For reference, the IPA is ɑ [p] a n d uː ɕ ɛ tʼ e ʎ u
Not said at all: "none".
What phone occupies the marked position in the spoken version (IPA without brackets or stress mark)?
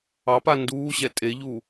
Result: p